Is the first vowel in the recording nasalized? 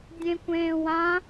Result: yes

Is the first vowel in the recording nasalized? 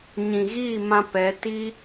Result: yes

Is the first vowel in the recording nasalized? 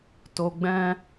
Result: no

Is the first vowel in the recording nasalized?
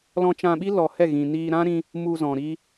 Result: yes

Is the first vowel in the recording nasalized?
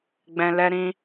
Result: yes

